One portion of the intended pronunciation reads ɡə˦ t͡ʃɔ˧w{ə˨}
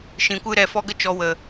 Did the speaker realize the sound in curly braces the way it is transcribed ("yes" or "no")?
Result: yes